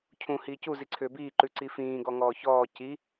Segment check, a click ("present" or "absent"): present